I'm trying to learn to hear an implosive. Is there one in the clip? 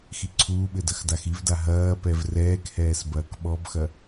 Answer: yes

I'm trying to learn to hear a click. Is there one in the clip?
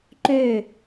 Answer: yes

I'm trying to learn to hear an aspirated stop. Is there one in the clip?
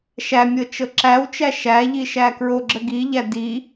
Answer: no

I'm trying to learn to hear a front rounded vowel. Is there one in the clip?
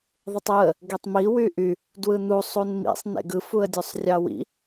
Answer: yes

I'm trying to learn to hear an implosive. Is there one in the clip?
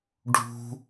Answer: no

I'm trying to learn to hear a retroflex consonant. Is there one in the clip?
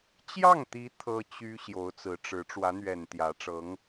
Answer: yes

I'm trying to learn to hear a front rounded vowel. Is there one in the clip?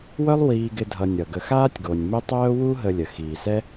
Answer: yes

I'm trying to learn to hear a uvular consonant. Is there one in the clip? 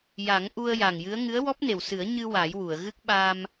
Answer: no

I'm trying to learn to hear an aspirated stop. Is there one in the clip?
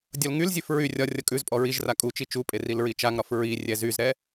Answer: no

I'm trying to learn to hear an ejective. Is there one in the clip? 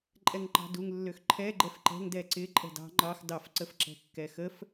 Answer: yes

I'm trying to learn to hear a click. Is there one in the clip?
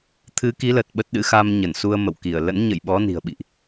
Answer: no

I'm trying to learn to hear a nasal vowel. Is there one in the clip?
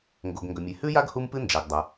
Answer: no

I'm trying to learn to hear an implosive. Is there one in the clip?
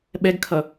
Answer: yes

